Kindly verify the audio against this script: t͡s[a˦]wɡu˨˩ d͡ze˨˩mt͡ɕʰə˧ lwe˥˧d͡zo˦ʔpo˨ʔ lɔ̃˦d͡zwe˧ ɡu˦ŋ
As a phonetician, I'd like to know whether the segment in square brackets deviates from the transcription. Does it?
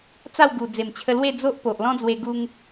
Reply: yes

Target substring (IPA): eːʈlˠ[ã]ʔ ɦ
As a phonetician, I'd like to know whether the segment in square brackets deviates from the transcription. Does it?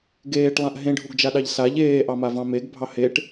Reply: no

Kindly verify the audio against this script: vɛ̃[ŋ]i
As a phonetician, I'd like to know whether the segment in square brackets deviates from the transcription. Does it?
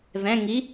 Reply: no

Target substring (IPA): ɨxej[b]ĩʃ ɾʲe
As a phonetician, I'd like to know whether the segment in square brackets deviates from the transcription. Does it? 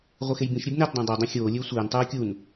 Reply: no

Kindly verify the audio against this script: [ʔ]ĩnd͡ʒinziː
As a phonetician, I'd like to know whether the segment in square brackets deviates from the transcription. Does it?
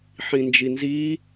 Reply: yes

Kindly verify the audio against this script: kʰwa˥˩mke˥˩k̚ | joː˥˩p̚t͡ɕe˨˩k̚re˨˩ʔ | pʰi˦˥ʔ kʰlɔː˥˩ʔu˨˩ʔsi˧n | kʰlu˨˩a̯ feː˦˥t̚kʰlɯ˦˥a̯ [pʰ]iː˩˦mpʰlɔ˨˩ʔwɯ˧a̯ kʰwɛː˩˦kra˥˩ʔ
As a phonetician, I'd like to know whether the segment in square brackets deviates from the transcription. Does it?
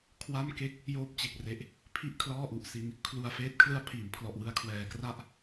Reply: no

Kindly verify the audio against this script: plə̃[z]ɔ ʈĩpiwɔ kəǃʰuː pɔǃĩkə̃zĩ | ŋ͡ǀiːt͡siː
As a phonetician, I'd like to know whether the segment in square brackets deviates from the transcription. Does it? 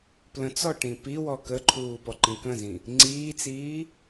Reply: yes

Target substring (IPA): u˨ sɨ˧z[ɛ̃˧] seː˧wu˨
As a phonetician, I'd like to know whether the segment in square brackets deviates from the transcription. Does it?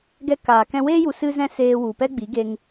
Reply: no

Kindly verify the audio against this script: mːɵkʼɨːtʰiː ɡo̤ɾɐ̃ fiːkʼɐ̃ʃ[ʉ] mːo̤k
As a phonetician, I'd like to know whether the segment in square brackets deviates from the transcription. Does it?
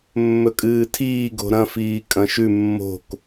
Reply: no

